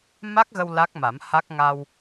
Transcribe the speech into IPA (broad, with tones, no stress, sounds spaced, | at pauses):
m a˦˥ k̚ ɣ ə˧ w l a˦˥ k̚ m a˨˩˦ m h a˦˥ k̚ ŋ a˧ w